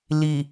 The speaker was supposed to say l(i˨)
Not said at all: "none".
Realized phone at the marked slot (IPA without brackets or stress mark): i˨